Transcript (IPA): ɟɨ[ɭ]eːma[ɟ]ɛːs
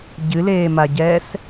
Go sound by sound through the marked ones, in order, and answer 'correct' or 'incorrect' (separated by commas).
incorrect, correct